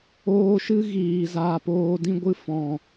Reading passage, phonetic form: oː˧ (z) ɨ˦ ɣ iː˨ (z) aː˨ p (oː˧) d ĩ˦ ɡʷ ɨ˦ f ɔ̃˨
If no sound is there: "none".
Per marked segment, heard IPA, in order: ʃ, z, oː˧

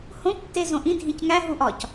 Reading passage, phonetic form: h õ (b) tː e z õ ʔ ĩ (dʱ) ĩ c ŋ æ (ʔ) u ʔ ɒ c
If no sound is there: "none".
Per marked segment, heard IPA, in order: p, dʱ, ɦ

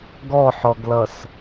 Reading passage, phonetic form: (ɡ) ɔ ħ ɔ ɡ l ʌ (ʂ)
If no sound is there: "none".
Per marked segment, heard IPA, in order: ɡ, s

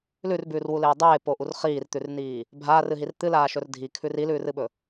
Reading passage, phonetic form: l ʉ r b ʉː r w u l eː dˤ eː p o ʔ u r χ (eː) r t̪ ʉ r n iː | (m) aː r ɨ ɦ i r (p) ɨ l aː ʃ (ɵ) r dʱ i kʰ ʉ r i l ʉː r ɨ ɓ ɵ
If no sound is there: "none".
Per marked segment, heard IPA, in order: iː, bʱ, t̪, ɵ

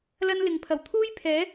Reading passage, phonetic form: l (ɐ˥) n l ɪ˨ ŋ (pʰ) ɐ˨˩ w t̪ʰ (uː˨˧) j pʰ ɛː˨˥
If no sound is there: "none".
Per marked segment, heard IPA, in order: ɐ˥, pʰ, uː˥

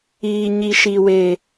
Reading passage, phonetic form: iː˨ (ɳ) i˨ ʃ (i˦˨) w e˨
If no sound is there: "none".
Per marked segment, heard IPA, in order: ɲ, i˨

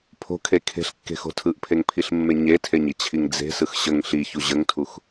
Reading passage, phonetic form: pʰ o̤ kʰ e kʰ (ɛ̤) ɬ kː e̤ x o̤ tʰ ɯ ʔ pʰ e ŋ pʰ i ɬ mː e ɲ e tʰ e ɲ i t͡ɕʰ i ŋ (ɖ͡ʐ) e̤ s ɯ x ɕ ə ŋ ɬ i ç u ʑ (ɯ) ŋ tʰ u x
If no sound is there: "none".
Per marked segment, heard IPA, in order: e̤, d͡z, ə

